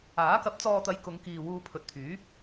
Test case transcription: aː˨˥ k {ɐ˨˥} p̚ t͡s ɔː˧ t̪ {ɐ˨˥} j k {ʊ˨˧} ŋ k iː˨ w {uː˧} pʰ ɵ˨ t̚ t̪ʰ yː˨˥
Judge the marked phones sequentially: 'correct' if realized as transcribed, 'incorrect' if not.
correct, incorrect: ɐ˨˧, correct, correct

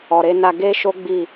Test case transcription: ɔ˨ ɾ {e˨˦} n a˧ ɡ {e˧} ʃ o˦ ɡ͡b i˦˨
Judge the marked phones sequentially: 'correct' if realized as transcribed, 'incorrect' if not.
correct, incorrect: e˦

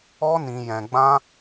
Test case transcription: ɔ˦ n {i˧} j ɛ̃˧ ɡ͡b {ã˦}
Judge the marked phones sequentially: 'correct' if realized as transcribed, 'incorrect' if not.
incorrect: ĩ˧, correct

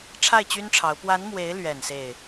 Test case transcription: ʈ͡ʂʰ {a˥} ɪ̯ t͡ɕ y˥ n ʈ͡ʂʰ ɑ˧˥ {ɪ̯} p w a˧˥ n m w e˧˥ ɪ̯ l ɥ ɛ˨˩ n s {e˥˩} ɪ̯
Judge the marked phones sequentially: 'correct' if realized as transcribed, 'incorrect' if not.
incorrect: a˥˩, incorrect: ʊ̯, correct

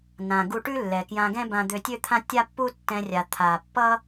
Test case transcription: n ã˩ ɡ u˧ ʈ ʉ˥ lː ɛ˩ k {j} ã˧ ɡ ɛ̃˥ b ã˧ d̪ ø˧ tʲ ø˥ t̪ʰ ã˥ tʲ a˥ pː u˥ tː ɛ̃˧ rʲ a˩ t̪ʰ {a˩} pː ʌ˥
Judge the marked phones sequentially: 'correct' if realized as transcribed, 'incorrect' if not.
correct, correct

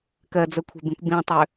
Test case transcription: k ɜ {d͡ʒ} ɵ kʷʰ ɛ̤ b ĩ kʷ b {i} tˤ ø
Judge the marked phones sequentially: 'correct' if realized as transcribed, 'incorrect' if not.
incorrect: d͡z, incorrect: ĩ

